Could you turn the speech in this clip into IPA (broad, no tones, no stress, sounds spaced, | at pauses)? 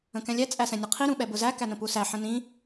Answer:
ə̃ k ɛ̃ lʲ ɛ t͡sʼ æ s ɛ̃ nʲ ə qʰ i ɾ ũ ɓ ɛ b ʊ z æ k æ n ə̃ p u s æ ħ ə̃ n ĩ